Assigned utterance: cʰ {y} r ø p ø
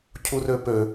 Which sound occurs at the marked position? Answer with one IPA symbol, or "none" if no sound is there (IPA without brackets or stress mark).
u